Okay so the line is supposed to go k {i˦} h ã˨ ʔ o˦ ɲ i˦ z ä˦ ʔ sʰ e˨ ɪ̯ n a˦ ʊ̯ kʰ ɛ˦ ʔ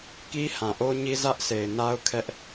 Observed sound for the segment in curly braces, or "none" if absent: i˦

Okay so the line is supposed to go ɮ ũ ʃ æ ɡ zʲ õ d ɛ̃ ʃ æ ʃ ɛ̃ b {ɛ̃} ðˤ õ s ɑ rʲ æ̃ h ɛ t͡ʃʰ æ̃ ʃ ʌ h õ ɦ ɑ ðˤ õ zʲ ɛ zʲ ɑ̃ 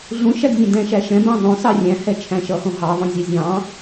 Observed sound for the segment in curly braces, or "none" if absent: æ̃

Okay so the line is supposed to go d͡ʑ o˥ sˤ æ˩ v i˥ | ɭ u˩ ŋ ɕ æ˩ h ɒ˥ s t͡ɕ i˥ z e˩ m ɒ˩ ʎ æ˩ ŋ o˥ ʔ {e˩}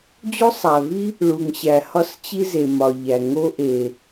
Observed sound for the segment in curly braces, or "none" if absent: e˩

